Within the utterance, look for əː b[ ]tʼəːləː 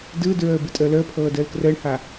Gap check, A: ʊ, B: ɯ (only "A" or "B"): B